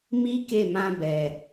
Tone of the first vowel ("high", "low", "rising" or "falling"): high